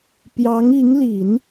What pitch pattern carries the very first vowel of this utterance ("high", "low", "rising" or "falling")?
rising